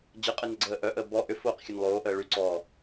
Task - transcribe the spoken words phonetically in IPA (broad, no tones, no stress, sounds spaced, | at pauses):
d͡ʑ ə qʼ e n ə ɡ͡ǀ əː ʔ œ ʔ əː b ɔ ʔ ʏ f oː q xʲ œ n lˠ oː ʔ əː ɭ y ǀ ɔː